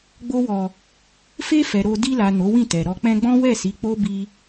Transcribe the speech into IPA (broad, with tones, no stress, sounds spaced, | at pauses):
ɡ͡b o˧ w ɔ˨ | f e˧ f ɛ˨ ɾ o˧ d i˧ l a˨ n o˨˦ w ĩ˦˨ t ɛ˨ ɾ ɔ˧ k͡p ɛ̃˧ ɡ͡b ɔ̃˦ w ɛ˦˨ s i˨˦ k͡p o˦ b i˧